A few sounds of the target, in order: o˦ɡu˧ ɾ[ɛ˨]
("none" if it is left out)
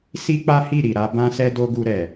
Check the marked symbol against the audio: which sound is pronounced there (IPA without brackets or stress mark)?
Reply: ɛ˨